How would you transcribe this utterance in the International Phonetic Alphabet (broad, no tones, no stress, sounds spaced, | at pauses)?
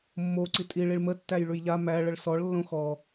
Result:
mː o ǀ i tʼ i ɭ i ɭ m ə tː æ j ɭ ʉ j ʎ a m æ ɭ ə ɭ s ɔ ɭ lː õ x ɔ